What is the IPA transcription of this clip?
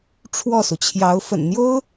ʈ͡ʂʰwɔ˥˩su˩t͡ɕʰjɑ˧˥ʊ̯ fə̰˨˩nn̪jo˥ʊ̯

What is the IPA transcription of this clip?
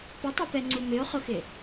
pɪtˤipɛŋ͡ǀu mɪo̯χʊxɪ

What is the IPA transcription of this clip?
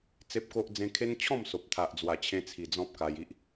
t͡se˦p̚ko˦ʔd͡zẽ˦ kʰe˦nt͡ɕʰɔ̃˥˧mso˨p̚ t̪ʰa˨ʔd͡zwa˨˩t͡ɕʰẽ˧t͡sʰi˨˩ d͡zɔ̃˦p̚ka˧ji˦ʔ

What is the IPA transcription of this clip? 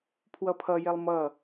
pʰwʌpʰʌjelˠ mʌ

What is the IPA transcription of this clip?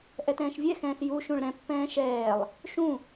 ʔɛtɛ̃ːʃvʲɛxɛ̃ːs juʃũɭ ɾɛ̃pːɛ̃ː ʃɛːlˠ | ʃũ

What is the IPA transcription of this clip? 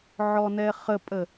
ʕɔnɛχəpʼə

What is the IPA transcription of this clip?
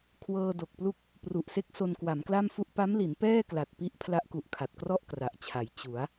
kʰwɤː˧do˨˩k̚plu˥˩k̚ | pru˨˩ʔse˦˥k̚ so˧nkwa˩˦mkla˥˩mfu˥˩ʔ pa˦˥mli˩˦n pɛː˥˩kla˨˩t̚ pi˦˥ʔ pʰla˦˥ʔku˨˩ʔkʰa˨˩t̚krɔ˥˩ʔ kra˨˩ʔt͡ɕʰa˩˦j t͡ɕu˩˦a̯

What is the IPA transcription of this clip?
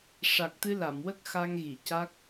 ʂa˨˩k̚t̪ɨ˧la˨˩˨mwə˦˥k̚ xa˧ŋɣi˨˩˨ca˦˥k̚

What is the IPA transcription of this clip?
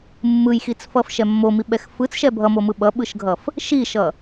mːɯjxit͡sfʌfʃɛ mːomiɓɛx fɯt͡sʃɛ bʱʌmomɯ ɓʌɓɯʃɡʱʌf | ʃiʃʌ

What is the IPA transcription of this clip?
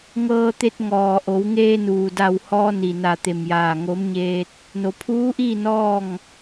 ŋɤː˧t̪e˧t̚ ŋɔː˩ʔo˩˧wŋeː˧ nuː˩da˧˩whɔː˧ni˩ na˧˩ t̪e˧˩mjaː˧˩ŋo˧˥m ɲeː˧t̚ | no˩pʰuː˧˥ʔiː˥˨ nɔː˥˨ŋ

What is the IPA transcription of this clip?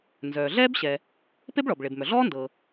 nzœː˩ɮɛː˥bɕɛ˩ | pe˥bɭɔ˩b ɭe˩bmœ˩ɮɔː˥ ndɤː˩

